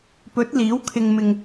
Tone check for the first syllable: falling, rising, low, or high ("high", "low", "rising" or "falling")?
rising